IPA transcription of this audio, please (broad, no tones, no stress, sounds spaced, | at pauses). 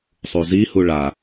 sˤ u z i h u ɭ a